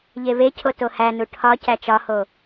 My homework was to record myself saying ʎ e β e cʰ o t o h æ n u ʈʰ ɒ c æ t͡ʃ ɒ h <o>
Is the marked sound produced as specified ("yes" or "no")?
yes